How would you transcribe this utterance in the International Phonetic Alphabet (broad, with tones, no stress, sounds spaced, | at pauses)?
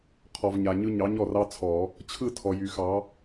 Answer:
qʰ ɔ˨ v ɲ a˨ ɲ ɯ˦ ɲ ɑ˨˥ ɲ ɔ˥˨ r ɑ˦ t͡sʰ ɔ˨˩˦ | t͡ɕʰ ɯ˥˨ tʰ ɔ˨ j y˨˩˦ x ɑ˨˥